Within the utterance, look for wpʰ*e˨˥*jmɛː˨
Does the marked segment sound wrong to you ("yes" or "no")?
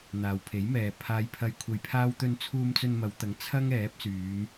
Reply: no